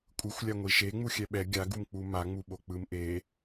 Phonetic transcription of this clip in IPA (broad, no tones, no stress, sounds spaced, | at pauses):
kʷʼ ɯ xʷ lʲ a ŋʷ i ʃ e ŋ͡m u xʲ ɛ ɓ ɛ ɡʲ a ɡ u m k͡p u m a ŋ͡m u ɓ o k͡p ɯ m ʔ e